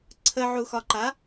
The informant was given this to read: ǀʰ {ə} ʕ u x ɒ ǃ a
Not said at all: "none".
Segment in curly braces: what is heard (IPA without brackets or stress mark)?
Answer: ə